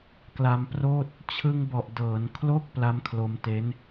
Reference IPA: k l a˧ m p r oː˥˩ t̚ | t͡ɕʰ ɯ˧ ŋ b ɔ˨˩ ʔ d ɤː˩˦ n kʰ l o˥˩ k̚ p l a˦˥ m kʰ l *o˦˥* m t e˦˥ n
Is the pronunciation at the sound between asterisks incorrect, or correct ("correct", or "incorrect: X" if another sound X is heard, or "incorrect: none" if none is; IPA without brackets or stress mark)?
incorrect: o˧